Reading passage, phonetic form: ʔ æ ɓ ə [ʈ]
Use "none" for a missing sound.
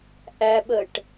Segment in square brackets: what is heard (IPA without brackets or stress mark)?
ʈ